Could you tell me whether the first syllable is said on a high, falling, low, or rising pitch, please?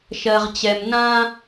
low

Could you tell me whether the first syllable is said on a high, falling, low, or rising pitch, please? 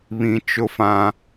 low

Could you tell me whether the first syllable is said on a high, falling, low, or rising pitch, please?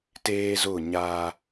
high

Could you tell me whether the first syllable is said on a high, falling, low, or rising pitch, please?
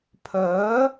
rising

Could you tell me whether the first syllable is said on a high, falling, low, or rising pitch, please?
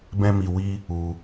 high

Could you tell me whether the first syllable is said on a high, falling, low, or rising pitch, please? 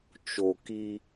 low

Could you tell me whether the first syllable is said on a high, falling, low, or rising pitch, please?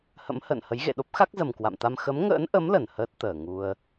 rising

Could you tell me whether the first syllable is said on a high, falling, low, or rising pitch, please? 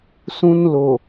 high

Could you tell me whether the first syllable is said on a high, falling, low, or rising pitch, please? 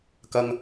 low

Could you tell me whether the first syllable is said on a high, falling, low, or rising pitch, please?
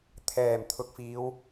low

